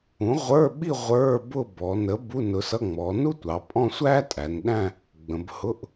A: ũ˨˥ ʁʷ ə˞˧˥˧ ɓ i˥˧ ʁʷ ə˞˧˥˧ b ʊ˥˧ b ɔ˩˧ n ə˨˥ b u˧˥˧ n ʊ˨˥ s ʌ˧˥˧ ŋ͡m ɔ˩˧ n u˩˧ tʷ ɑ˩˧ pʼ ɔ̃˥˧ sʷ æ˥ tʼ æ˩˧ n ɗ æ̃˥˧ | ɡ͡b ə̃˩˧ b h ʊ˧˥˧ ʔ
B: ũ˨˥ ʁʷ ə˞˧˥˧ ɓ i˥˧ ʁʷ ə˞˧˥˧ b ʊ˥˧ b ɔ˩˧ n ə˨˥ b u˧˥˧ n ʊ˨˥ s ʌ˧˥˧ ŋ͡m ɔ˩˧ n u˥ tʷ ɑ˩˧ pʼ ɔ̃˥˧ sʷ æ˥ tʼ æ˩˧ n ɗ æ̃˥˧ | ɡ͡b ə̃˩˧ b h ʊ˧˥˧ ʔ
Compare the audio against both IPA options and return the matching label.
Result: B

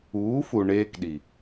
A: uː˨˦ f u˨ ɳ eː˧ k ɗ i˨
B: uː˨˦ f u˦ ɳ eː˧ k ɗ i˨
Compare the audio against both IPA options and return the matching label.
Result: A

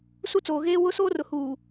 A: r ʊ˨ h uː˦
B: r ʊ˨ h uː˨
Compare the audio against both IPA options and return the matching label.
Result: B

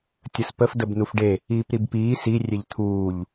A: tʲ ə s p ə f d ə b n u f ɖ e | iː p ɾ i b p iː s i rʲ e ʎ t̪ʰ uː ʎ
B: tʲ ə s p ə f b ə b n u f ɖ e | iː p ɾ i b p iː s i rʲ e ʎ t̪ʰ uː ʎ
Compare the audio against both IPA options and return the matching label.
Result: A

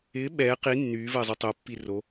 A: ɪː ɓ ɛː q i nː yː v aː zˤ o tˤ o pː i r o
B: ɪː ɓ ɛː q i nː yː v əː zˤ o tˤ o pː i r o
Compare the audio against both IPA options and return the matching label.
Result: B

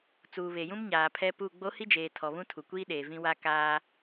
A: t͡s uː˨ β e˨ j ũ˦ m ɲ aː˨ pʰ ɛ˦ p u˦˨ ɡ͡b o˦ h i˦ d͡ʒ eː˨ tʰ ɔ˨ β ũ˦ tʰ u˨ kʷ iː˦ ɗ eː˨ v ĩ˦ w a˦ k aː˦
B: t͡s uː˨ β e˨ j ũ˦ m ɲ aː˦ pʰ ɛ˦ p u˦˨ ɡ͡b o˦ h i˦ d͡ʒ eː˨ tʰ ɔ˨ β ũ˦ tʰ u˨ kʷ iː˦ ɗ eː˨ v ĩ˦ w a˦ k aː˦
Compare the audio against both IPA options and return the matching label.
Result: A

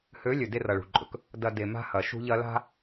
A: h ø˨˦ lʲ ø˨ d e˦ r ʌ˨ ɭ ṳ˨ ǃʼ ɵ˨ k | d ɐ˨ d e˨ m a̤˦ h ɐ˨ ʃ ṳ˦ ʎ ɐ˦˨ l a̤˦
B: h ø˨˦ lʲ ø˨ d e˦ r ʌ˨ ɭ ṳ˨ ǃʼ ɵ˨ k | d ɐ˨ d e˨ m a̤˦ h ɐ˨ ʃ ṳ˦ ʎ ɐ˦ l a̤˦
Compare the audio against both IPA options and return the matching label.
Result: B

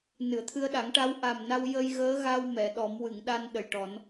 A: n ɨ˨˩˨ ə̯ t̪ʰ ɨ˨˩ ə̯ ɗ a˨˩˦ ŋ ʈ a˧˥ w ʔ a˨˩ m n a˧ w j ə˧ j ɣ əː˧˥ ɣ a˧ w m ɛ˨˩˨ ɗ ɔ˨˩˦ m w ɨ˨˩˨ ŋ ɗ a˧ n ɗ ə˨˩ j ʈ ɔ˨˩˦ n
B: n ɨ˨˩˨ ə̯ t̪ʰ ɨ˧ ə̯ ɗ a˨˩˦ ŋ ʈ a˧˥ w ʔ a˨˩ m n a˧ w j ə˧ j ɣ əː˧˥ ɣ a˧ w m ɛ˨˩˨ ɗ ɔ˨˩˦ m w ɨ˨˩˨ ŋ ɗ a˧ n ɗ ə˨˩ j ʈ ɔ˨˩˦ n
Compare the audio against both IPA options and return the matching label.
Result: B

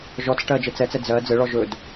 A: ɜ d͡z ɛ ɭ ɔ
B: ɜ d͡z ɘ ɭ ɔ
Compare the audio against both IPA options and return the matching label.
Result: B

